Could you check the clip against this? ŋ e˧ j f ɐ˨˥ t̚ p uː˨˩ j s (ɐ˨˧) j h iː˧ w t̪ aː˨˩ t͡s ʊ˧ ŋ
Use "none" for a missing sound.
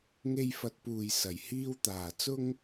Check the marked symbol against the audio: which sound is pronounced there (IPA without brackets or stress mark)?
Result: ɐ˨˩